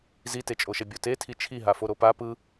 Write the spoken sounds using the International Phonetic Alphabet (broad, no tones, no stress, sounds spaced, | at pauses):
z i t e t͡ʃʼ o ʃ ɛ bʲ o t e tʰ i t͡ʃʰ i ɦ a f o ɾ o p a p ɯ